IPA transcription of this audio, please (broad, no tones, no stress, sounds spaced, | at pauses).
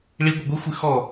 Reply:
ɭ i ɡʷ ɨ ɡʷ i xʷ ɨ x ɔ